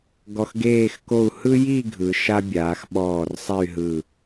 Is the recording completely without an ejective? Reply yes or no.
yes